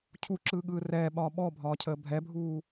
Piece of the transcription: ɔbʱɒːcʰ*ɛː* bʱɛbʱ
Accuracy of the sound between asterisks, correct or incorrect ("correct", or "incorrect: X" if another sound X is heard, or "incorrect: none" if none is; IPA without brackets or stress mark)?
incorrect: əː